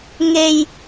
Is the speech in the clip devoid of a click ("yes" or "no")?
yes